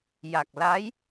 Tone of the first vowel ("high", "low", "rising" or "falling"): low